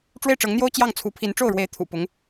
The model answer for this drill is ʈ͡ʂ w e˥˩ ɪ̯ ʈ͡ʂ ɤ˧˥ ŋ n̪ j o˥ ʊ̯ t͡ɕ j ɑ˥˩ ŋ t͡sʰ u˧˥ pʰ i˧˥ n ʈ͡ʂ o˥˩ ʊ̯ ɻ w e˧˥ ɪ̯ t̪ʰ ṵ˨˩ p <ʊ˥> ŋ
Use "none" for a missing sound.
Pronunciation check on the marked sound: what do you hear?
ʊ˧˥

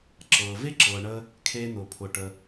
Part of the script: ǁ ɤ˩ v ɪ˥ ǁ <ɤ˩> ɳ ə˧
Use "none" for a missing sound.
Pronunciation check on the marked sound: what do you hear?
ɤ˩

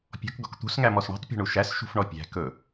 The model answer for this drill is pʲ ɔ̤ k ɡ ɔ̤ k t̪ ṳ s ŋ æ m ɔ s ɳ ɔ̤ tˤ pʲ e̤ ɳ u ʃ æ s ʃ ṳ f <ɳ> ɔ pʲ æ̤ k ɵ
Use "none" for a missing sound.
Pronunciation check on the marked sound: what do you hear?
ɳ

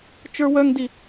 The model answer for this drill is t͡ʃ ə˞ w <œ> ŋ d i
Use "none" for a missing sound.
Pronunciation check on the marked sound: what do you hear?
œ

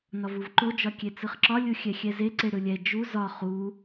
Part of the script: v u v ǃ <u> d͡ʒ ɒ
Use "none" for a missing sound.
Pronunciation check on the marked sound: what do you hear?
o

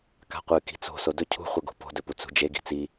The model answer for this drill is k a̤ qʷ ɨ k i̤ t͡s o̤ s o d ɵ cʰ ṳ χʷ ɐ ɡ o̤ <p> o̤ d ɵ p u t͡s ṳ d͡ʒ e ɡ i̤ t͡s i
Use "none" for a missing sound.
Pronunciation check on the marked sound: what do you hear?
p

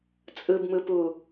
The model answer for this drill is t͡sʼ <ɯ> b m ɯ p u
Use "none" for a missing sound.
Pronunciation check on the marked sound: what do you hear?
ɯ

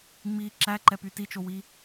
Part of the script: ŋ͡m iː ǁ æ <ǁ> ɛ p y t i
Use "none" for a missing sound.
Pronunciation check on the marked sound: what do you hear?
ǃ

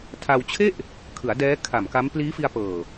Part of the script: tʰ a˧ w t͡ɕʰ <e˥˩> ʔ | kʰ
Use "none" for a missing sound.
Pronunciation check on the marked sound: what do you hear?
e˥˩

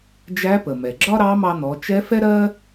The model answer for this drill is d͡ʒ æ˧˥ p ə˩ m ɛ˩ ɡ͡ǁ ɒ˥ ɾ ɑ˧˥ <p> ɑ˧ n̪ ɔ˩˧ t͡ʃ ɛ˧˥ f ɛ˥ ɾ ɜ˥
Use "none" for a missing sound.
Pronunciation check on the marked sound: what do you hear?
m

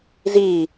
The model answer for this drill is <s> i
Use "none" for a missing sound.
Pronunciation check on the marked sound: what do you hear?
z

